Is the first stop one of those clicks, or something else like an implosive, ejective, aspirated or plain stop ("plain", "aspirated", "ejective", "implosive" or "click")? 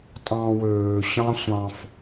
ejective